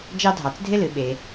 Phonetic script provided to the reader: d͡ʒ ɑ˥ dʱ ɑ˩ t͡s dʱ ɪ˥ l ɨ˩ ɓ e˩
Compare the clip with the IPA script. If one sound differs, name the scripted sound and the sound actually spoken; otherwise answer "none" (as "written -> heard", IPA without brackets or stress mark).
none